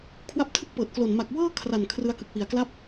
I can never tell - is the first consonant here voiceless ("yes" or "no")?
yes